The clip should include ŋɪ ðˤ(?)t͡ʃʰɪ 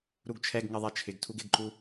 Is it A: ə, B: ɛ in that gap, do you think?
B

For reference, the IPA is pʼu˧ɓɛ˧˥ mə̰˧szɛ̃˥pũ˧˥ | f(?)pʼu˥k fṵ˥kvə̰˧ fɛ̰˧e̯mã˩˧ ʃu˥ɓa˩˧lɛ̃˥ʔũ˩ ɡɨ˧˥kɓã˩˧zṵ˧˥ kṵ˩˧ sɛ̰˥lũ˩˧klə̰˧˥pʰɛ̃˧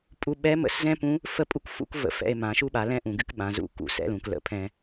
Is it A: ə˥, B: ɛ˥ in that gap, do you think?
A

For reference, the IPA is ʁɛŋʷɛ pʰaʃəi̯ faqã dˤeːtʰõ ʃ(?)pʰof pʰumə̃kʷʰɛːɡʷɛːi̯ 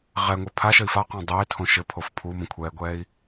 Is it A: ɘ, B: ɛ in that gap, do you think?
A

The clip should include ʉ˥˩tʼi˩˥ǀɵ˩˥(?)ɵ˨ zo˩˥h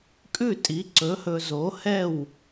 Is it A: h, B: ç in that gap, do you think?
A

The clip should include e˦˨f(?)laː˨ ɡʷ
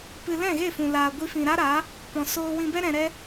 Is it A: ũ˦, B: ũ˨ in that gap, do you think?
B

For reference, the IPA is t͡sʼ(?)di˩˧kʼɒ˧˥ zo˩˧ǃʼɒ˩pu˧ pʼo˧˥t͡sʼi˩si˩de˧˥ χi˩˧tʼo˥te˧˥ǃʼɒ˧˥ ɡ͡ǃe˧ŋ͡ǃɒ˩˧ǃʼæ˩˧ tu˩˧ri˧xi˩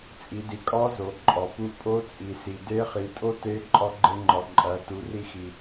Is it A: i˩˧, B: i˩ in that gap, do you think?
A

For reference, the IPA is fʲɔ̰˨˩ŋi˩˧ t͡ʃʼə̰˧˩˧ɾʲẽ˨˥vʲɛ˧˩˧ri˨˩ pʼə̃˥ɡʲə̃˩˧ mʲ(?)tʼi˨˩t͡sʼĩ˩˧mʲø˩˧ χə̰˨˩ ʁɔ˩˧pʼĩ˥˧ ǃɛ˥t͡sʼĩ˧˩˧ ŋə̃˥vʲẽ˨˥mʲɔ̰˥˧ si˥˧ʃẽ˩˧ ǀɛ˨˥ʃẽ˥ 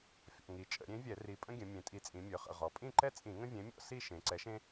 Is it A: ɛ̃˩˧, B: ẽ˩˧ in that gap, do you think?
B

